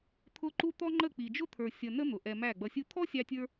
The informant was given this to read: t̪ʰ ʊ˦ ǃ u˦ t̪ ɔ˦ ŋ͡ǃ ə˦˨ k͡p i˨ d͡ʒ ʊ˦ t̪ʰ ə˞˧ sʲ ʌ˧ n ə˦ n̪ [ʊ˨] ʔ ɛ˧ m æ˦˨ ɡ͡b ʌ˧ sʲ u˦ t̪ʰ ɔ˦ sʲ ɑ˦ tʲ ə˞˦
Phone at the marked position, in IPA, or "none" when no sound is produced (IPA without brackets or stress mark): ʊ˨